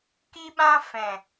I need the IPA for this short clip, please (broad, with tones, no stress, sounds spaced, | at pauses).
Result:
k i˦ ɓ ã˦ f ɛ̃˨